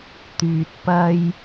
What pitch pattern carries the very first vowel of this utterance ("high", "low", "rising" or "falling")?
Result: low